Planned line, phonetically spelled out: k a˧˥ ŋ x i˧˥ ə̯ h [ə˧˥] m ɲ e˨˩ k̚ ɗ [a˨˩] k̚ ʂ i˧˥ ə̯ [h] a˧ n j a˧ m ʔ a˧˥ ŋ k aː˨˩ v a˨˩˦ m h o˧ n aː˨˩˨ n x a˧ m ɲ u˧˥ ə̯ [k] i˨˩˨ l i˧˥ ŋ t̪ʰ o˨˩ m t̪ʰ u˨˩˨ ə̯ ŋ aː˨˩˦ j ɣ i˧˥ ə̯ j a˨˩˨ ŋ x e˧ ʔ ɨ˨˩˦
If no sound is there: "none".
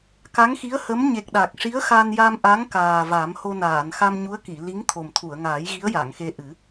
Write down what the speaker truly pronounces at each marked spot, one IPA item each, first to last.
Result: ə˧˥, a˨˩, x, k

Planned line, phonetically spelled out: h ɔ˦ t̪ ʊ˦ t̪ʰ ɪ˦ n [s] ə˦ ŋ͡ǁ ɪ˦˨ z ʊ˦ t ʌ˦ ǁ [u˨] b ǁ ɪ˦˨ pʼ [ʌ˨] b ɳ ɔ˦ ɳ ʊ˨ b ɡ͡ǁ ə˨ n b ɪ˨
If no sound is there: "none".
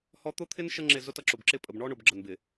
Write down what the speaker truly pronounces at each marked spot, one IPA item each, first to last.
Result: ʃ, ʊ˨, ə˨

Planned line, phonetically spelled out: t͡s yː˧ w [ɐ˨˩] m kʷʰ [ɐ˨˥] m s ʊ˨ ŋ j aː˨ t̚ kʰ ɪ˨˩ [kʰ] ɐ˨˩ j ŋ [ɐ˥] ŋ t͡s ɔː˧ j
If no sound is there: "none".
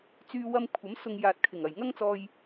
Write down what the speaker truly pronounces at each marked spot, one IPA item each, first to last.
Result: ɐ˧, ɐ˨˥, ŋ, ɐ˥

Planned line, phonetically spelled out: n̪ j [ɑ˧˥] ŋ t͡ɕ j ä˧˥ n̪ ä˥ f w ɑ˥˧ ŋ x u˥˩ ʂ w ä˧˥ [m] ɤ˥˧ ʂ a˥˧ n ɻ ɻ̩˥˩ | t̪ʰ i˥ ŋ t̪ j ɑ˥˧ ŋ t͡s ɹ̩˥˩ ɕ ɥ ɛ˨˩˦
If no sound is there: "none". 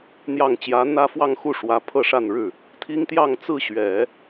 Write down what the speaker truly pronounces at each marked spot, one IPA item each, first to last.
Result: ɑ˨˩, pʰ

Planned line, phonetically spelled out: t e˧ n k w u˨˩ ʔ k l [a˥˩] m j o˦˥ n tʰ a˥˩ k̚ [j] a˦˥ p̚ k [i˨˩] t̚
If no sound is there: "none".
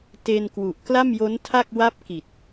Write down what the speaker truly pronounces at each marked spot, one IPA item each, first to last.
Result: a˥˩, w, i˨˩

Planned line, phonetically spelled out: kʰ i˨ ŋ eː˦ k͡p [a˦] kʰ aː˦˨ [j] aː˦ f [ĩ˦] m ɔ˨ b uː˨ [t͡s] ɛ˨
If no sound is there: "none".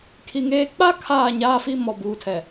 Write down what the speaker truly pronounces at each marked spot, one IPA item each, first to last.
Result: a˦, ɲ, i˦, tʰ

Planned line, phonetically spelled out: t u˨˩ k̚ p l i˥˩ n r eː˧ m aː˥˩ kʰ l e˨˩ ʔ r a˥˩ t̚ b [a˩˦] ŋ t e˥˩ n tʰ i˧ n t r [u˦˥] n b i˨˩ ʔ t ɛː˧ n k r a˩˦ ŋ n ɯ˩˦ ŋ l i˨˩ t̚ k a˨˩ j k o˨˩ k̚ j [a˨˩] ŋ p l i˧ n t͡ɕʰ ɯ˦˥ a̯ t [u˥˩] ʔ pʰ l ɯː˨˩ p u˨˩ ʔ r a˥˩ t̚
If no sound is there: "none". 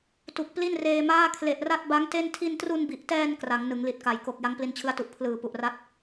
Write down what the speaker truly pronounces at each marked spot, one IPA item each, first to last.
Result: a˦˥, u˧, a˦˥, u˨˩

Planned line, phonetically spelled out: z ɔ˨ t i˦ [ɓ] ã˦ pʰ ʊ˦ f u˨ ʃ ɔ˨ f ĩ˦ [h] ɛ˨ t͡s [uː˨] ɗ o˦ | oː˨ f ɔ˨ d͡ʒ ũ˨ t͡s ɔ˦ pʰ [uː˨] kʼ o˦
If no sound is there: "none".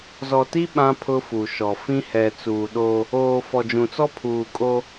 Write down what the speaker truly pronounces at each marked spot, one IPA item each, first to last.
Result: ɓ, h, uː˨, uː˨

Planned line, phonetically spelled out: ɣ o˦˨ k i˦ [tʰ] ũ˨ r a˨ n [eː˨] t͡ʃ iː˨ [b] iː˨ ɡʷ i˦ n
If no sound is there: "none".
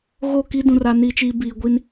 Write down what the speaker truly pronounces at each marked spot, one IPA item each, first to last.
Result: d, iː˨, b

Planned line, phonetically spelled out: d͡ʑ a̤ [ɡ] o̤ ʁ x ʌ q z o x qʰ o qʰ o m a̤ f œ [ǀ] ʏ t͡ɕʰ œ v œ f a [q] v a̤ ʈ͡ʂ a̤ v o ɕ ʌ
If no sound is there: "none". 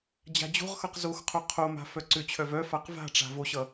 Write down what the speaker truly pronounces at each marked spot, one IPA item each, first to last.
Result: d͡ʑ, ǀ, q

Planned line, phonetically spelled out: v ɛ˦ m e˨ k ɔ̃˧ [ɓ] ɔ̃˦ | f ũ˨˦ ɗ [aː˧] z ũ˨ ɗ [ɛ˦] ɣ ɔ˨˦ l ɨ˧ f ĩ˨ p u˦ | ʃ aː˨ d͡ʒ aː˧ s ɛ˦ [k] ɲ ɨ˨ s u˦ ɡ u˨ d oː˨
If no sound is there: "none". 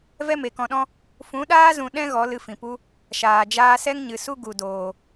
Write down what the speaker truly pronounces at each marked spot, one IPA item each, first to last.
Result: ɗ, aː˦, ɛ̃˦, ŋ

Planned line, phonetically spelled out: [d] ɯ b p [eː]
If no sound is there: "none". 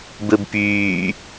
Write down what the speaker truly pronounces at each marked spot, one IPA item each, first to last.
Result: b, yː

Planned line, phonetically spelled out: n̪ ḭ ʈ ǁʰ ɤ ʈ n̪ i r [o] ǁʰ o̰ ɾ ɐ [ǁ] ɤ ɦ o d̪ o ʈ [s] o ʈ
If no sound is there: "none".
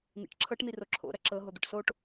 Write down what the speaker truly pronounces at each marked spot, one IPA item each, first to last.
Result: o, ǁ, s

